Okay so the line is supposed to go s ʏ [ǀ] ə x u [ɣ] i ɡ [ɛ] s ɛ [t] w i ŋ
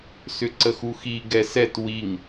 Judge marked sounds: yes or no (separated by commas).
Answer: yes, no, yes, yes